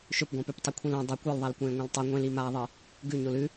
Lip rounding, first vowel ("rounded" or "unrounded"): rounded